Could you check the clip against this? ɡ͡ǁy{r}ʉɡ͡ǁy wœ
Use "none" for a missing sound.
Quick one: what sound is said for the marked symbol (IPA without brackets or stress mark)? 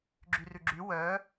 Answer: r